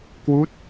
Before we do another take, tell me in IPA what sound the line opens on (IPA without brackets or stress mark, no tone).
k